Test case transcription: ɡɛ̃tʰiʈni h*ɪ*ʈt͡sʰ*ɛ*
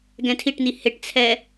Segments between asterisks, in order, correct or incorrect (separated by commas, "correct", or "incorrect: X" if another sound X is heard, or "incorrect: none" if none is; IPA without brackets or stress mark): correct, correct